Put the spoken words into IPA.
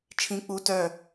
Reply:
t͡ʃʰ ĩ k͡p u t œ

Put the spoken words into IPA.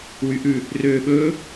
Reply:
w y ʔ ʉ | r øː ɓ ɵː

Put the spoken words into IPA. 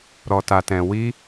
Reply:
ɾ ɔ˨ t a˨ t ɛ̃˨ w i˧

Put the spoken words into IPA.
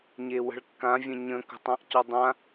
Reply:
ɲ e w ə̤ ɭ kː ã vʲ ə̃ ɲ ə̃ k ə̤ tˤ ã ʔ c ɔ dˤ ã

